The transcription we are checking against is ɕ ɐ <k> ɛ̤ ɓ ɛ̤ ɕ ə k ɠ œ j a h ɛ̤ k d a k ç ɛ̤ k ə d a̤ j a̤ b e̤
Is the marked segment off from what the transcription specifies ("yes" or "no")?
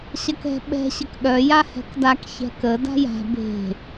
no